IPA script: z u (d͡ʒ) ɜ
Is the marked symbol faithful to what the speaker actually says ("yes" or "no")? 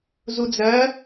no